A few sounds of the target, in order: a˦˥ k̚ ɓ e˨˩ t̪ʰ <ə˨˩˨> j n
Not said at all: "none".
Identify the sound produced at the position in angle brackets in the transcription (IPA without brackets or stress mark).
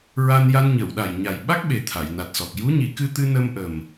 a˨˩˨